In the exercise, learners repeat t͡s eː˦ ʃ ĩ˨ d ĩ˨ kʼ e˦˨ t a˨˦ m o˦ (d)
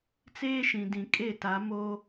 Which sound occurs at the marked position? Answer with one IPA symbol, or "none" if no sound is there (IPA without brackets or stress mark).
none